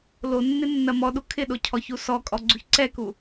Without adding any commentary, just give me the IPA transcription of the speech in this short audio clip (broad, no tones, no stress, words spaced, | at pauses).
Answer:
lonːɪ nːɐmɔɗu kʰɪɗo cʰɔçusɔkʼɔ ɡ͡ǀuçǀɛku